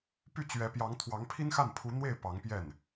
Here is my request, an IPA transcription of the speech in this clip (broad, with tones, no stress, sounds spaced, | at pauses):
p y˥˩ t͡ɕ ɥ ɛ˧˥ p j ɑ˧˥ ŋ t̪ʰ w ɑ˧˥ ŋ pʰ i˥ n x a˥˩ n pʰ u˧˥ n̪ w e˥˩ ɪ̯ p ɑ˧˥ ŋ p j ɛ˥˩ n